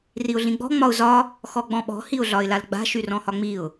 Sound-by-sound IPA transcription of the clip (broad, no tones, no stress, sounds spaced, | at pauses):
r i ʊ̯ ɮ ĩ ɡ͡b ɔ̤ ŋ͡m ɒ ʊ̯ z ɒ | x ɔ ɡ͡b ɔ̃ ɓ ɔ̤ h i ʊ̯ ɮ ɒ ɪ̯ l a l ɡ͡b a̤ ʃ y r ɔ̃ h ɒ ŋ͡m i ʊ̯